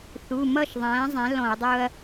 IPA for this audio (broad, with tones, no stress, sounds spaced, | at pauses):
θ u˩˧˩ m ʌ˥˩ ʃ ðˤ æ̃ː˩˥ zˤ æ̃˩˥ l ɔ̃˧˩˧ ɐ̯ dˤ ʊ˦ ɐ̯